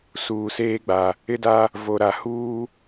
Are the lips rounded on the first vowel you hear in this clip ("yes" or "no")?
yes